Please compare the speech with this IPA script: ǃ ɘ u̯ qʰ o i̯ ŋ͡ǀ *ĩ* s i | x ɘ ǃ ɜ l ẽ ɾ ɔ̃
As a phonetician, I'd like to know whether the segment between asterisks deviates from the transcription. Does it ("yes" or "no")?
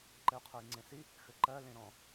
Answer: yes